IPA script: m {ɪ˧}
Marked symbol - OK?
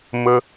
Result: no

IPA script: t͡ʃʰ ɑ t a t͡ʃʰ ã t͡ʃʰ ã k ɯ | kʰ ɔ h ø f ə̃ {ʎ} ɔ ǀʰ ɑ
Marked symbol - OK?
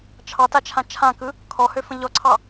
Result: yes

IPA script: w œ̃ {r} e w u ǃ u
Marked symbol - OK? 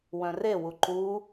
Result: yes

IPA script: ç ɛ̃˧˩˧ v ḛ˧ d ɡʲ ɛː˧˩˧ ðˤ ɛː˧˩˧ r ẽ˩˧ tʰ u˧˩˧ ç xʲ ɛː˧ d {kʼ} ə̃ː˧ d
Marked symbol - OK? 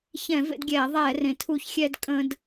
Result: yes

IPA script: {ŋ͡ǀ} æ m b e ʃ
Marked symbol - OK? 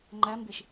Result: no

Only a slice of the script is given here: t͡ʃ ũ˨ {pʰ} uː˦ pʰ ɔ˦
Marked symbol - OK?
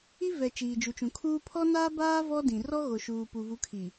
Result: no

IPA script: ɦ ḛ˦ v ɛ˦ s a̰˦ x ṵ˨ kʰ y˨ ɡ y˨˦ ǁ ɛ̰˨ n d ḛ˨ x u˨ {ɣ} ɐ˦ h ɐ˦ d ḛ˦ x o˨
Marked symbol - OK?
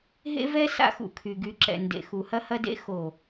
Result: no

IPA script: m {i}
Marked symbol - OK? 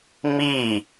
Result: yes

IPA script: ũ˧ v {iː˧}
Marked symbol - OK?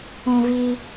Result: yes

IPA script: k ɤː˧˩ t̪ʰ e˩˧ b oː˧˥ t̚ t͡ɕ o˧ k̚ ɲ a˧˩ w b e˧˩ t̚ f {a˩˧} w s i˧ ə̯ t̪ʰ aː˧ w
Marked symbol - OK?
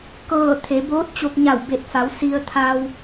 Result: yes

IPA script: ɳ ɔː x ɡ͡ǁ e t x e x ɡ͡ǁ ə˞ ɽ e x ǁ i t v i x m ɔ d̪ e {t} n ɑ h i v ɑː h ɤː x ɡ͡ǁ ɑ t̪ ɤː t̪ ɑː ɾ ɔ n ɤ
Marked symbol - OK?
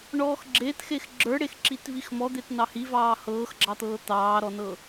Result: yes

